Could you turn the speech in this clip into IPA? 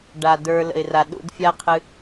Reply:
ɖ a˨ d ə˞˧ l ə̰˨ ɪ̯ r a˨ ɗ ṵ˧ d fʲ a˦ qʰ ɨ˧

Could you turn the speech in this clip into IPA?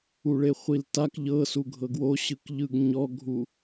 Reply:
u ɭ e χʷ i l t a k ʎ ɤ s u ɡʱ ɤ ɡ w o ɕ ɯ k ʎ ɯ ɡ ɲ ɔ ɡʱ u

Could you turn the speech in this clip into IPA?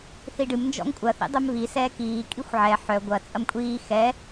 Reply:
θ i ɖ ɨ m n d͡ʒ ɔ̰ ŋ kʷʼ ɐ θ ḭ dˤ œ m β i s ɛː k iː kʼ i xʷ ʕ ɛ ħ œ ɡʷ ɐ t͡sʼ ɐ m kʷʼ iː x ɛ

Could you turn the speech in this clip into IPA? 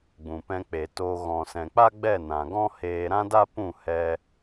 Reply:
ɡ͡b ũ˨ p ɛ̃˧ k͡p e˨ t oː˧ ɣ ɔ̃˨ s ɛ̃˨ k͡p a˦ ɡ͡b ɛ˦˨ n ã˨ ɡ ɔ̃˦ h eː˧ ɾ ã˦ d a˦ p ũ˦˨ h ɛ˦

